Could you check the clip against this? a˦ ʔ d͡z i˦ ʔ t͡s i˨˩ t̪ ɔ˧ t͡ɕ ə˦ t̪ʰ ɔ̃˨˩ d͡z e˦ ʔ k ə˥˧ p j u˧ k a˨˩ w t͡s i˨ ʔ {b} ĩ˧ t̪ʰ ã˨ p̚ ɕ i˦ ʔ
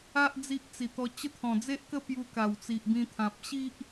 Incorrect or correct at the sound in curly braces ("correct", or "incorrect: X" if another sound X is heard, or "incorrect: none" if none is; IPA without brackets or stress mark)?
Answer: correct